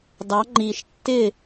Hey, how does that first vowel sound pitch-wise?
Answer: rising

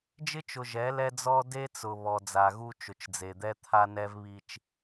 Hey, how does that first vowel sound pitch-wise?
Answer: high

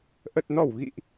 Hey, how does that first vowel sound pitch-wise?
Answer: low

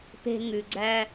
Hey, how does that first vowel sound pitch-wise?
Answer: low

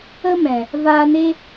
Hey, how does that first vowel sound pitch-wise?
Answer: high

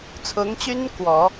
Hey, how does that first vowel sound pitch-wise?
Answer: rising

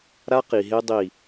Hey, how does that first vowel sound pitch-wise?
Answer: high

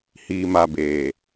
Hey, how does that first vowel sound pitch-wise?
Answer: low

